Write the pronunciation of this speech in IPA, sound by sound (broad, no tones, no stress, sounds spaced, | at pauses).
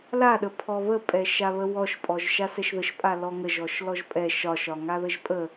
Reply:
l a ɗ ə pʰ ɔ β ə pʼ ɛ ʃ a β ə w ɔ ʃ pʼ ɔ ʒ ʃ a s ɛ ʃ ð ə ʃ pʼ a l ɔ ŋ ə ʒ ɔ ʃ l ɔ ʒ pʼ ɛ ʃ ɒ ʃ ɒ ŋ a ð ə ʒ pʼ ə